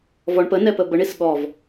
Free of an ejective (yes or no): yes